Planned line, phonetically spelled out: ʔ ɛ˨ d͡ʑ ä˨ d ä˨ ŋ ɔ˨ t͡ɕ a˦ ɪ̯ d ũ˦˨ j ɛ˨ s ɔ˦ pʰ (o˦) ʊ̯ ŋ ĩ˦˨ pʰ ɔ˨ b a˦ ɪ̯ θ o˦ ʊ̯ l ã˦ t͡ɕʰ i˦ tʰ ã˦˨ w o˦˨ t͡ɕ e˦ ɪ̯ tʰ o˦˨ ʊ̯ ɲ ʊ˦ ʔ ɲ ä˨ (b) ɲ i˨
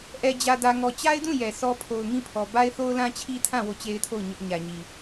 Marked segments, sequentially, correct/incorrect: incorrect, incorrect

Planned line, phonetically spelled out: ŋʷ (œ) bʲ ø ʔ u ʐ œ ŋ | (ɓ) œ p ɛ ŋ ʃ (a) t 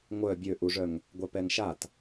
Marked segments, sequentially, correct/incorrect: correct, incorrect, correct

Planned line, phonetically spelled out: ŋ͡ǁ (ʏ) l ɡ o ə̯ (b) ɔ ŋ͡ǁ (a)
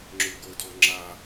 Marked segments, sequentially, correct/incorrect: correct, incorrect, correct

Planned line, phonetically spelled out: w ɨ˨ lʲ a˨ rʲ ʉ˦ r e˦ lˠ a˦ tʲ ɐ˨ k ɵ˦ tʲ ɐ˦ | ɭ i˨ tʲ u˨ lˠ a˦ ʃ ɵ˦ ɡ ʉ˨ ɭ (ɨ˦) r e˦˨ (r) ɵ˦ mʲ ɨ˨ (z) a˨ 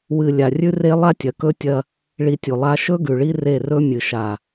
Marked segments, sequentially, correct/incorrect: incorrect, correct, incorrect

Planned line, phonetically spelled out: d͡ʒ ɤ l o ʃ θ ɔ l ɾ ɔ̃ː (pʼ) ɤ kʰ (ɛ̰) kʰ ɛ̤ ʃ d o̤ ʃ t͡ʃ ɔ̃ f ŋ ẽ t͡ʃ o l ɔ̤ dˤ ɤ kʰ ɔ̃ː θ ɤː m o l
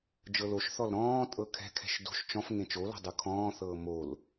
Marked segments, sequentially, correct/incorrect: incorrect, incorrect

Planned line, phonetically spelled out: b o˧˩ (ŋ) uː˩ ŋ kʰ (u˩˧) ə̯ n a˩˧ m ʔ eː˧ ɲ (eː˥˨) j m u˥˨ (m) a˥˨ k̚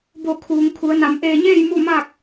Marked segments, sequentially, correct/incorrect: incorrect, correct, correct, correct

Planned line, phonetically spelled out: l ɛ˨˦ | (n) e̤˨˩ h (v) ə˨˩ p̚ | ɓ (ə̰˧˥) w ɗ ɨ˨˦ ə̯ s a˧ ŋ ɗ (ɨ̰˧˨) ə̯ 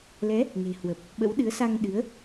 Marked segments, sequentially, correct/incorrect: correct, incorrect, correct, incorrect

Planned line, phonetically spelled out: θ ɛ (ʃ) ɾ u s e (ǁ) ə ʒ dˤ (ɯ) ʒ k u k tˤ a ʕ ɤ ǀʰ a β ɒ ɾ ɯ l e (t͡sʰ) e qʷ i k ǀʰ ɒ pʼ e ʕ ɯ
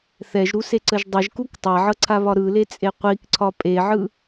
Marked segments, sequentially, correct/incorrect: incorrect, incorrect, incorrect, incorrect

